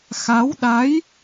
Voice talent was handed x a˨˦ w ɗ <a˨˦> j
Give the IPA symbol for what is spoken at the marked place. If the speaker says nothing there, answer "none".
a˨˦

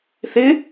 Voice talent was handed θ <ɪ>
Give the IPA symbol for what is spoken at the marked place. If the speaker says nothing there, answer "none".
ɪ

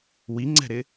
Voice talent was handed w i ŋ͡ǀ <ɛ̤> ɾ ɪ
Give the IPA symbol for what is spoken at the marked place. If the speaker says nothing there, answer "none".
ɛ̤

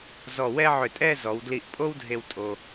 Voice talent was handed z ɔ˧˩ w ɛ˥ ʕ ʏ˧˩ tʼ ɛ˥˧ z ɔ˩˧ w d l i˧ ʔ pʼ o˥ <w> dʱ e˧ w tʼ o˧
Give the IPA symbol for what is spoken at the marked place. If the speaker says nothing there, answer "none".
w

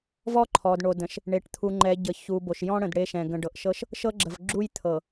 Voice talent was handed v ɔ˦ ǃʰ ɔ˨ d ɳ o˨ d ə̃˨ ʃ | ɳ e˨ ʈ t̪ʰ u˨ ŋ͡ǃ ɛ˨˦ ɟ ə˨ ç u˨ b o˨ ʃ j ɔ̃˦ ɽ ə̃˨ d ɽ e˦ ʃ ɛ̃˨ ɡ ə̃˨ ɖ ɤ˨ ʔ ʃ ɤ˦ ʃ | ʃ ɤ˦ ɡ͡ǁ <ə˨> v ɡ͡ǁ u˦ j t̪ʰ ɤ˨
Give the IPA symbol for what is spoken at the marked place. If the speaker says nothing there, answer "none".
ə˨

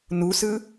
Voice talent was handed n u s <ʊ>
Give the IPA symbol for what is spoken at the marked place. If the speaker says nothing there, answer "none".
ɯ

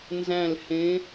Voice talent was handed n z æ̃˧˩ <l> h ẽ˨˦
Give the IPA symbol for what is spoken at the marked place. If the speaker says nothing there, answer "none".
l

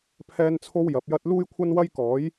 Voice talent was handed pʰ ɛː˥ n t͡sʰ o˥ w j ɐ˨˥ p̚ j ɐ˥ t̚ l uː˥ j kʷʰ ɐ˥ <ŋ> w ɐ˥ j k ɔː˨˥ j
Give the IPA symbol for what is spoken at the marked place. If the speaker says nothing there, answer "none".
n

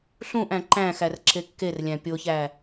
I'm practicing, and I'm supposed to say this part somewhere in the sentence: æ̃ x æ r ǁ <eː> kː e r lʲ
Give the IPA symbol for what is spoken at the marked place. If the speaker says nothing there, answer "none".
e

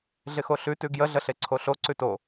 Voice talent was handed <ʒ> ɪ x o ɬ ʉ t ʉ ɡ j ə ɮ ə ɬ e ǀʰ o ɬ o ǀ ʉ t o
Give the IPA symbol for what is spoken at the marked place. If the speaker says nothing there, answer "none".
ɮ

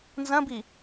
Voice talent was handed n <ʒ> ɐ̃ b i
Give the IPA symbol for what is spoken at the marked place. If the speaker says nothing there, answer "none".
z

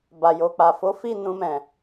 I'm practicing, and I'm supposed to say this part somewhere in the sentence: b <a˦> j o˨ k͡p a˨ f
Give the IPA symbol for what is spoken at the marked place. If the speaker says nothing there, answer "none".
a˨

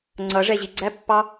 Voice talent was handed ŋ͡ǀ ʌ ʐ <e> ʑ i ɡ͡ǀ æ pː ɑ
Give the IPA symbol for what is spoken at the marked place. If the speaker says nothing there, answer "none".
ɛ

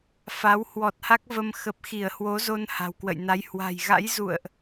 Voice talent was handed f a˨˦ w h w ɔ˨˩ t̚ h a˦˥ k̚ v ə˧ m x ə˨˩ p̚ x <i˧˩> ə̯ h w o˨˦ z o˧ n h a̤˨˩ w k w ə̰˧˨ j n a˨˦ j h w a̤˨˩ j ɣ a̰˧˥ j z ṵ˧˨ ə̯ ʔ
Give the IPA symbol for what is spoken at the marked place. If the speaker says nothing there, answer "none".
i˧˩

